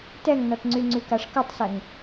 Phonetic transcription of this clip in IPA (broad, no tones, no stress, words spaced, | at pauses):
tɛŋnɔtŋ͡ǀy ŋ͡ǀykaʂkotˤsɛŋ